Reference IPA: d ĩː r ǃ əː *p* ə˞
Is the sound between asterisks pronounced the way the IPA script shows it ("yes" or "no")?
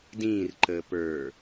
yes